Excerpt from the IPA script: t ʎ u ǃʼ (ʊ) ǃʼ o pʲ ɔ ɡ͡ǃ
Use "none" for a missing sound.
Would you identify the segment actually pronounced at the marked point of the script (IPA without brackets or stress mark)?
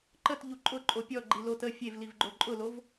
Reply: ʊ